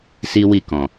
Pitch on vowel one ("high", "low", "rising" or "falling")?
high